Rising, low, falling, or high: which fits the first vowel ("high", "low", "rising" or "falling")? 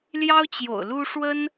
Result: high